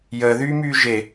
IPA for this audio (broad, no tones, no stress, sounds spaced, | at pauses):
j əː ð yː m yː ʒ e